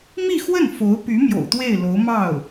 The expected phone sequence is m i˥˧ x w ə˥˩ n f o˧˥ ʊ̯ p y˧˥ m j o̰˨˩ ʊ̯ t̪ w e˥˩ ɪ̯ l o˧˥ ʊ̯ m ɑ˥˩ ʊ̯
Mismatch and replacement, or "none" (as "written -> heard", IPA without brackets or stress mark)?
none